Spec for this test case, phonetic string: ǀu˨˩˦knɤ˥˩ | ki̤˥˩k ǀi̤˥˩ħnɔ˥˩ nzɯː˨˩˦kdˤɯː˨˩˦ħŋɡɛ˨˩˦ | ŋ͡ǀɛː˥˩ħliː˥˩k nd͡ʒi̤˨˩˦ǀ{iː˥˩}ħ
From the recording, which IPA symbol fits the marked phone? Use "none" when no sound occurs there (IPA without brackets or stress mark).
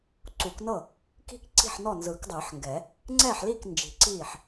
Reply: iː˥˩